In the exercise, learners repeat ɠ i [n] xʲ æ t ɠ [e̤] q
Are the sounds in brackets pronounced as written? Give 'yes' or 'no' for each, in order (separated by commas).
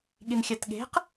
yes, yes